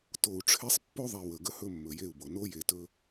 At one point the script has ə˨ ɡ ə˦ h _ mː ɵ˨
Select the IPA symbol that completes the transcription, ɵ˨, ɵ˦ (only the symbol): ɵ˦